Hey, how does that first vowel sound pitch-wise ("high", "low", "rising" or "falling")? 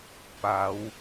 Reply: rising